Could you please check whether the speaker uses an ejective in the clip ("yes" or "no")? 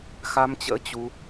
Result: no